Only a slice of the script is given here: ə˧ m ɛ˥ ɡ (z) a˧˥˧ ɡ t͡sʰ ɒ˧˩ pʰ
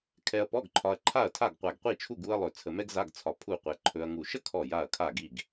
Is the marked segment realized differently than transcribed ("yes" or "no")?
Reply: no